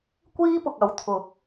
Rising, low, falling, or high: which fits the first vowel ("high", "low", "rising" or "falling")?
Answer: high